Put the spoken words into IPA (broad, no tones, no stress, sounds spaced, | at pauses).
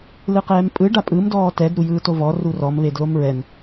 l ɯ q ɛː m pʼ ɯ ɖ a pʼ ɯ m d ɔː t ɛ d ɾ u j ɯː t o v ɔ r u r ɔ m β e d l o m ɹ ɛ n